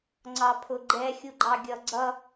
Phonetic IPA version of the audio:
ŋ͡ǀ ɑ pʰ ʊ ɡ͡ǃ ɛ xʲ u ɡ͡ǃ ɑ ɡʲ ʌ ɡ͡ǀ ʌ

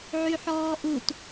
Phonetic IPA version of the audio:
ʕ y ħ ɔː ʔ u t

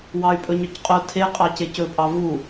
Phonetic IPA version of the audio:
w ɑ y̯ pʼ ɵ ɲ œ c qʼ o tʰ e qʼ ɑ c e c ɵ pʼ ɑ v u

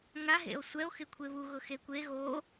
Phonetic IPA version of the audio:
ŋ a ɦ ḛ o̯ sʷ ɛ o̯ x ɪ kʷʰ e β u ɣ ʊ x e kʷ e ɣ o

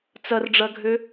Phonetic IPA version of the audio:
t͡s ɐ r ɖ͡ʐ ɐ ɡʱ ø

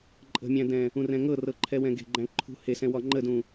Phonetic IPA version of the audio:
ǃʼ ə̤ mʲ æ̃ d ɛ̃ | ũ r ɛ̃ ŋ ɤ r ɤ ǃʰ ɛ w ɛ̃ ɡ e̤ ɡ͡ǃ æ̃ ǃʰ ṳ h e s ɛ̃ w ɒ ŋ͡ǃ ə d ũ

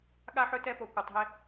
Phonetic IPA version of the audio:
ɠ a˦ ħ ɵ˦ t ɛ˦ p o˦ kʷ a˦ tˤ ɦ e˦

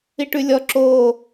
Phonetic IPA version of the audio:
i ʈ ʉ lʲ ɔ ǁ o

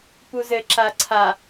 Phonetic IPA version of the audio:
p u z ɘ ǁ a ǀʰ a

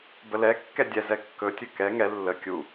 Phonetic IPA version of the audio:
b ə l ɛ kː ɛ dʲ ɛ z ɛ kː ɵ tʲ ɵ k ɛ ŋ ɛ lː ə kʲ u

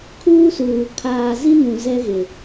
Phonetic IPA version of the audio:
kʰ uː˦ s uː˨ kʰ aː˨ z i˦ n ũ˨ z ɛ˦ ɣ ɪ˨

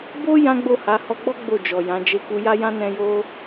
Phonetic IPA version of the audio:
b o˦ j ã˦ ɡ͡b o˦˨ h a˨˦ h ɔ˧ ɡ͡b ɔ˦ ɡ͡b o˦˨ d͡ʒ ɔ˨ j ã˨˦ d͡ʒ e˧ k u˧ j a˦ j ã˦ n ɛ̃˧ j o˦

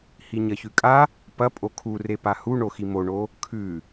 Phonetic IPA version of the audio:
h i ɲ ɐ ç ʉ kʼ a | p ɐ pʼ o kʰ u r e p a h u ɳ o x i m o ɳ o | kʰ ʉ

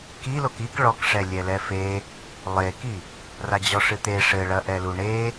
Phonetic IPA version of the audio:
k i l o k i k ɭ ɔ k ʂ ɛ lʲ ɛ l ɛ f e | lˠ e k i | r a d͡ʑ ɔ ʂ ɨ t̪ e ʂ ɘ ɭ ɐ ʔ ɛ l u ɳ e

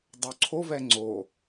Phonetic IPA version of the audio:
dˤ o ǀʰ o v ɛ ŋ͡ǀ o

